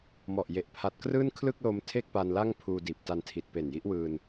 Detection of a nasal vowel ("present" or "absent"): absent